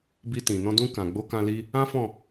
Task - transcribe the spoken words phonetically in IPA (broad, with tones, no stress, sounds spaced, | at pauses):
b i˧ t ĩ˨ n ɔ̃˧ d ũ˧ k ã˨ ɡ͡b o˧ k ã˧ l i˧ | ã˦ f ɔ̃˦˨